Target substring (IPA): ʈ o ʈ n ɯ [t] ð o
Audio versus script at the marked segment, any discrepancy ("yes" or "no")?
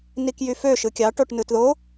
no